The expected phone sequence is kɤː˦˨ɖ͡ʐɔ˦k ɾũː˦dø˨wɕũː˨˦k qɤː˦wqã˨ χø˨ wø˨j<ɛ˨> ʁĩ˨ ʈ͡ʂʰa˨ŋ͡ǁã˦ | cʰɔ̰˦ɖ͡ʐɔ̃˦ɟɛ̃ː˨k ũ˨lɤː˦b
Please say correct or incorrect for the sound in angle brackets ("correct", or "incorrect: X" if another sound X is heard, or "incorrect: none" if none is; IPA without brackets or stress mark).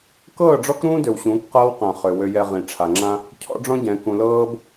correct